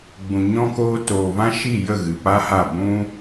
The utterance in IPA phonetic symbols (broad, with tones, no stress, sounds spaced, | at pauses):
ɡ͡b ũ˨ ɲ ɔ̃˦ k oː˦ t oː˨ v ã˦ ʃ i˦˨ j ə˦˨ ɣ ɨ˨ p a˦ h a˦˨ b ũ˦